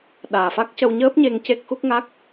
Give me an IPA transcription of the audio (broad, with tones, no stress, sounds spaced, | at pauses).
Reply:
ɗ aː˨˩ f a˦˥ k̚ c ə˧ w ɲ əː˦˥ p̚ ɲ e˧ ŋ c e˦˥ k̚ x u˦˥ k̚ ŋ a˦˥ k̚